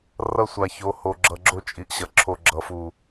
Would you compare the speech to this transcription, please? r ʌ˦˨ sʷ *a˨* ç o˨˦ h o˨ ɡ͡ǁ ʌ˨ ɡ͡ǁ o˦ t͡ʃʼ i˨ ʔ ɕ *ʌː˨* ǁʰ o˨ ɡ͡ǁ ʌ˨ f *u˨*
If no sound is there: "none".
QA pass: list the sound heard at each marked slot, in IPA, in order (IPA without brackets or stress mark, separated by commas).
a˨, ʌ˨, u˨